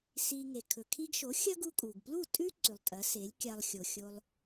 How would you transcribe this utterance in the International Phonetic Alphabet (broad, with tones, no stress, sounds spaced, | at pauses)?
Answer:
s i˧ ŋ e˩ kʰ ɵ˩ kʰ i˧ ɡ ʃ o˩˥ xʲ ɐ˥ ɡ u˧ kʼ u˩ ɡ p l u˥˩ tʼ ʉ˥ ǀ ʉ˩ lˠ tʼ ɐ˩˥ s e˩˥ lʲ kʲ a˧ lˠ xʲ o˩ xʲ o˧ lˠ